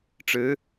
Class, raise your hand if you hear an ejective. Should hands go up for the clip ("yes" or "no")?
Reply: no